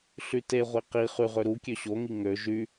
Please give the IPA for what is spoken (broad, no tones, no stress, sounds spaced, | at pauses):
ɬ y t e ʁʷ i q i χ y ʁ ø ɾ u kʲ ø ɕ o ŋ i ŋ ø ʒ y